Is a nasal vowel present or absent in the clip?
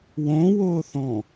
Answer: present